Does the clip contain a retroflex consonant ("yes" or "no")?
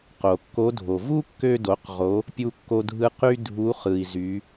no